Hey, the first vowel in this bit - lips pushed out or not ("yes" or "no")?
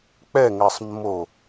no